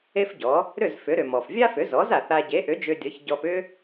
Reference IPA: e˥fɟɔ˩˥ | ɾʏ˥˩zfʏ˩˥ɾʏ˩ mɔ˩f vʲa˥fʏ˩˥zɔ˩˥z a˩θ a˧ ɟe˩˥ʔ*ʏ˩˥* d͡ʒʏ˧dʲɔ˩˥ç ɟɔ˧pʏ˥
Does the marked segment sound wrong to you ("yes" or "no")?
no